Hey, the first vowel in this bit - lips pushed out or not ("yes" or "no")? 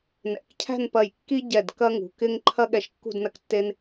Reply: no